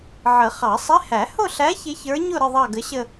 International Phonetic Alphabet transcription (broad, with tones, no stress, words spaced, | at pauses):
ʕə˨˩˦χɑ˨˩˦sˤɪ˧˥˧ hæ˨˩˦hʊ˥˧ɬæ˧˥ çɪ˧˥çə˞˧˥ɲʊ˥˧ɾə˥˧ ðˤɑ˥˧ɡə˧˥ɕə˥˧